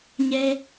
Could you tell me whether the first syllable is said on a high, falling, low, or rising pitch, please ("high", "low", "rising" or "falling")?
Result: high